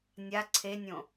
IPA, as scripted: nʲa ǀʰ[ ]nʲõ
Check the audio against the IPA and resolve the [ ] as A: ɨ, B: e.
B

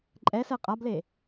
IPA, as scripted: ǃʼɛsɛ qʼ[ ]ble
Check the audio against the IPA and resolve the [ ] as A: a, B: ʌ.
A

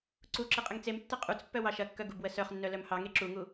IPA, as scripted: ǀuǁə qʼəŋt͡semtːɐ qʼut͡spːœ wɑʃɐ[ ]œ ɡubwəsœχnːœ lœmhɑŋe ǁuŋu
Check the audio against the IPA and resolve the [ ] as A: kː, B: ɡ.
A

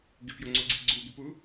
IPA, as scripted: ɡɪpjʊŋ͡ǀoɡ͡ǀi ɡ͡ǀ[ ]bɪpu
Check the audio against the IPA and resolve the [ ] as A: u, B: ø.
A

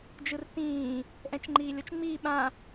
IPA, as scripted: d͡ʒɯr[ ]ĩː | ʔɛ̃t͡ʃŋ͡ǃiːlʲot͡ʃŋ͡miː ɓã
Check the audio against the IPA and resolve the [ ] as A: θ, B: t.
B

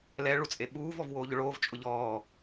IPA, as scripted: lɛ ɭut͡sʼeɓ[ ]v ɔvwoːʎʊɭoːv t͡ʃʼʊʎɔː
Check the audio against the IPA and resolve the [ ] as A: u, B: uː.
B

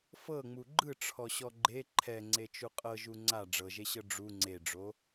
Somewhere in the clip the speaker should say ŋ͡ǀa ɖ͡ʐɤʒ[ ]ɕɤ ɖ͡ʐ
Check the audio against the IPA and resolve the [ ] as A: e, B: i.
A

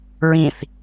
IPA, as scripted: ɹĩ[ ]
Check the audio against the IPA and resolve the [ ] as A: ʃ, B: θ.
B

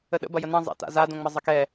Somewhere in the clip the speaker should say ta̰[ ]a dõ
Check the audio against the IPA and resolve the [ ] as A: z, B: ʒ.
A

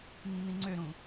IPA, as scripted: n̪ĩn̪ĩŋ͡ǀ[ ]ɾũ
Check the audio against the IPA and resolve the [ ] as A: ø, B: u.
A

